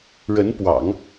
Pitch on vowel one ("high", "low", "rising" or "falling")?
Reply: rising